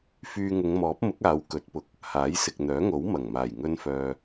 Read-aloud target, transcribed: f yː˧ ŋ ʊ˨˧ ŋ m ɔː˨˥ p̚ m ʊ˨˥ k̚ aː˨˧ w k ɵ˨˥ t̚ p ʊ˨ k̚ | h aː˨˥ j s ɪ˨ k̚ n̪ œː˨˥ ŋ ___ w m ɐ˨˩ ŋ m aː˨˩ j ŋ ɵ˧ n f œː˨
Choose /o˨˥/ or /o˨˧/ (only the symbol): o˨˥